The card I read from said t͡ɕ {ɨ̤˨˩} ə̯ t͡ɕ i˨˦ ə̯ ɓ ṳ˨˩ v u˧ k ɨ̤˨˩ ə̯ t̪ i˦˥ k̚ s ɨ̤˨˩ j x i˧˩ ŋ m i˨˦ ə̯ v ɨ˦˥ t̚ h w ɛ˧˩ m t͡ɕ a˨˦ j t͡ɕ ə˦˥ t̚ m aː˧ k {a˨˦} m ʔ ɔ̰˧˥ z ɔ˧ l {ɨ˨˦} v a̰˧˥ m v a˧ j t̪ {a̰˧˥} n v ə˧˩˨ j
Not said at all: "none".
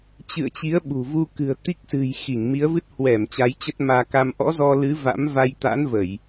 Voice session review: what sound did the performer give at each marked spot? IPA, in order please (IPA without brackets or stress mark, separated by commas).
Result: ɨ̰˧˨, a˧, ɨ˨˦, a̰˧˥